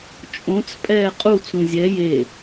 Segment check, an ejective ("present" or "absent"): present